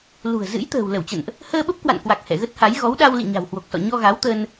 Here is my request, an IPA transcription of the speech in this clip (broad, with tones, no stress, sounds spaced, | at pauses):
l ṳ˨˩ ə̯ z ɨ̰˧˥ j t̪ ə̤ː˨˩ w l ə˧˩ w t͡ɕ ə̰˧˨ n ʔ | h əː˧ ɓ ə˦˥ p̚ k w a̰˧˨ n k w a˨˩ k̚ h ɛ̰˧˨ ɣ ə˦˥ t̚ h a˨˦ j ɣ ɔ˨˦ w ɗ a˧ w l ḭ˧˨ ɲ a̤˨˩ w h w o˨˩ k̚ s ɔ̰˧˨ ɲ ɔ˧ ɣ a˨˦ w t̪ ə˧ n